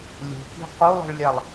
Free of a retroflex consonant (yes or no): no